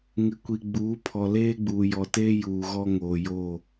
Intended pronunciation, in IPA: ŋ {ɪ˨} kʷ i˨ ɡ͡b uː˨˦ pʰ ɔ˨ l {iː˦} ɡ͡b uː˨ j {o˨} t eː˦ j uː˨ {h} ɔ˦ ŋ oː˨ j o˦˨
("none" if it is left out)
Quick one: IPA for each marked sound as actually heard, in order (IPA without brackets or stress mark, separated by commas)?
ɪ˨, eː˦, ɔ˨, ɣ